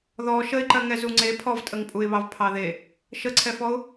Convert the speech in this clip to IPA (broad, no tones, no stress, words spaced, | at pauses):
ðɔ ʃəɪ̯ǃɜ ŋɛzuŋ͡ǀe pʰɔvtʼəŋpʼuɪ̯βɑv pʰɑðe | ʃəǀʰɛfɔʊ̯